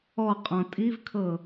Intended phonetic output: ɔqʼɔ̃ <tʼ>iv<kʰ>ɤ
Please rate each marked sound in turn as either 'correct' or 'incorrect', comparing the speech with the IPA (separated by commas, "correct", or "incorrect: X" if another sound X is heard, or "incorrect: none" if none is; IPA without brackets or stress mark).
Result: correct, correct